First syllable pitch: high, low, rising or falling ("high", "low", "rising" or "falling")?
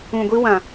low